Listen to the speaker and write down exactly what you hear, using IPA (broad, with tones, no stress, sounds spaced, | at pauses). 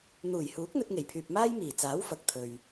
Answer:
n̪ uː˨˩ j h uː˨˥ k̚ n̪ ɵ˧ t̚ ŋ e˨˩ j pʰ yː˨ p̚ m aː˥ j m iː˨˩ t͡s aː˨˥ w f ɐ˨ k̚ t̪ʰ ɵ˨ ɥ